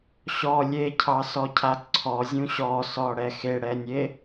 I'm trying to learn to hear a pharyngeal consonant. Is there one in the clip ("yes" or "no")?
no